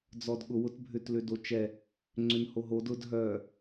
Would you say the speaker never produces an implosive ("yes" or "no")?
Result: no